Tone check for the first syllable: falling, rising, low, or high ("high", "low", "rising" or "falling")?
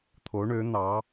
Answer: rising